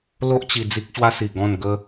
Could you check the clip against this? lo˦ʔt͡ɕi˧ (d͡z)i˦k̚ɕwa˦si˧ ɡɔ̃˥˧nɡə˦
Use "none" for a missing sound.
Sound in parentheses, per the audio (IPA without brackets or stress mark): d͡z